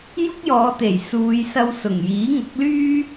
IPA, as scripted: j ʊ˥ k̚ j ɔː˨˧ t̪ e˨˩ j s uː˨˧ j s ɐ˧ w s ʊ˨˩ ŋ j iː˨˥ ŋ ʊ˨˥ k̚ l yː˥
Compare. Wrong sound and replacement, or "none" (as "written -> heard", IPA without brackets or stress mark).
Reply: none